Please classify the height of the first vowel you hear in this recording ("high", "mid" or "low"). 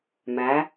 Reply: low